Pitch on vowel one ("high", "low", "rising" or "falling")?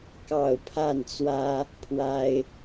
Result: falling